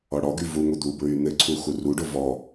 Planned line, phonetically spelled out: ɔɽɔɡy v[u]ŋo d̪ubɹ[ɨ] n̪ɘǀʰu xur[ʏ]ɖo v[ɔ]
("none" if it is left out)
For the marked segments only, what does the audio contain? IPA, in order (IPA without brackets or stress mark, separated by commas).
u, y, u, ɔ